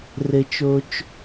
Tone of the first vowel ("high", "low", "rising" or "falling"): low